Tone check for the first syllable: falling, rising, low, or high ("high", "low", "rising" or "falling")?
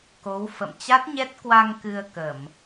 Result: rising